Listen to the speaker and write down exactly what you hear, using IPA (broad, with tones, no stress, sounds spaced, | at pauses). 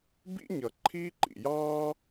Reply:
b ḭ˦ ɲ ʌ˩ ǃʰ iː˦ ǃ ḭ˩ j ɑː˥